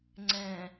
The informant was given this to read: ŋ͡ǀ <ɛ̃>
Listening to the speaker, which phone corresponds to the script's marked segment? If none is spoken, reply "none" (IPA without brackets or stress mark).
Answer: ɛ̃